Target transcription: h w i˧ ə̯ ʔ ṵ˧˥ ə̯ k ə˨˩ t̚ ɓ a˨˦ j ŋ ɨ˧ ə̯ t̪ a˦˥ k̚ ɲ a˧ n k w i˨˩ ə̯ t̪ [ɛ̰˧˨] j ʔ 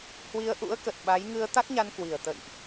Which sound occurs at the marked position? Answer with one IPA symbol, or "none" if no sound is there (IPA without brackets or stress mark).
ə̰˧˨